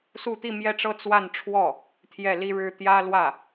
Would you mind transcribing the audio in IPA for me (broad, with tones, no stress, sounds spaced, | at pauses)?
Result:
s u˥˧ t̪ i˥˧ m j ɛ˥˧ ʈ͡ʂ ɤ˥˧ t͡s w a˥˧ n ʈ͡ʂʰ w ɔ˥˩ | t̪ʰ j ɛ˥˩ l i˥ ɻ ɻ̩˥ t̪ j ä˥ l w ä˥˩